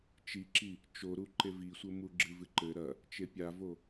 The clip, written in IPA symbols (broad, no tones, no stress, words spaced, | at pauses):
t͡ʃiǁi | t͡ʃoɾu ǃevisʷɘ muɡ͡ǁɨvɨ ǃɘ ɾɐ | t͡ʃepʲavo